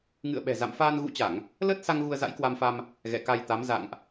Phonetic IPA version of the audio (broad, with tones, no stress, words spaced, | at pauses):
ŋɨ̰˧˨ə̯ɓɛ̤˨˩ za̰˧˨mfaː˧n ɣṵ˧˥t͡ɕa˧˩˨ŋ | ləː˦˥t̚sa˧ŋ ɣu˧ə̯za̰˧˥jkwa˧mfa˧m | ɣɛ̰˧˨ka˧j t̪a˨˦m za̰˧˨ŋʔ